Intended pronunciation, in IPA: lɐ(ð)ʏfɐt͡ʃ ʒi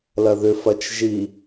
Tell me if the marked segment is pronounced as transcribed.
yes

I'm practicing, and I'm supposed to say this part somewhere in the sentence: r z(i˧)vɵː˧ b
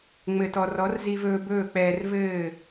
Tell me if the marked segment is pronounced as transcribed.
yes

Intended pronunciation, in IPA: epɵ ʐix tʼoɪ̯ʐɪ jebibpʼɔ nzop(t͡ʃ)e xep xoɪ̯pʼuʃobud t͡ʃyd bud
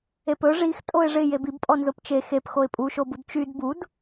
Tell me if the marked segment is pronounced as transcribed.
yes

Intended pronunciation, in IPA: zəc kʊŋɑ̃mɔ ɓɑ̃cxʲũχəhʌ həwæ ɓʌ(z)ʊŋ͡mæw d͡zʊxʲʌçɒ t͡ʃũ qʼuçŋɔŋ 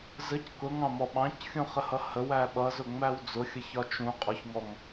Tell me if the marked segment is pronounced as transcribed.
yes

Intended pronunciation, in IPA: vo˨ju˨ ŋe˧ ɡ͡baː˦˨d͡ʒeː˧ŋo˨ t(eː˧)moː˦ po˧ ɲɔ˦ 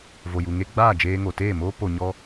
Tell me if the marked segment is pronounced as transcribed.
no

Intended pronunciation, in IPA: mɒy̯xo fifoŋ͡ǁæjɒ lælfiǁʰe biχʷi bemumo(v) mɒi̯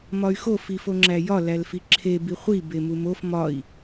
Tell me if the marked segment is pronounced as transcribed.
no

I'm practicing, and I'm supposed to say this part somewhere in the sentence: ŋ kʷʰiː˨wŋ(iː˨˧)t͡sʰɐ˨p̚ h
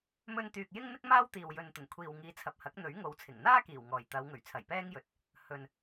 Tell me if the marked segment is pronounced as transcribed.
yes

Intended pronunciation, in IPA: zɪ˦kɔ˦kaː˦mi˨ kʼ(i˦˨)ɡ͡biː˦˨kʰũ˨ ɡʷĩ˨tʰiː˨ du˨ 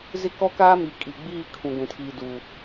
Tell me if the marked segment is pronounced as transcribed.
no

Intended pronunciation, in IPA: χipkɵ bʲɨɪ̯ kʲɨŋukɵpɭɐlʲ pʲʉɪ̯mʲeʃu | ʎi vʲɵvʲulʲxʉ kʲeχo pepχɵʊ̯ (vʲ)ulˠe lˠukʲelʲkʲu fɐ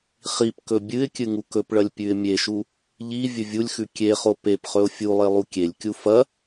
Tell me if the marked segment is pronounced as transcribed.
no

